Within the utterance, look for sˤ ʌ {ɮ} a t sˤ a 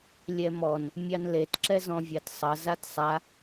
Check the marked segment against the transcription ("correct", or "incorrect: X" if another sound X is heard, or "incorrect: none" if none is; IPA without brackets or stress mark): incorrect: z